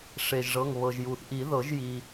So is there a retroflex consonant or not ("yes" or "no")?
yes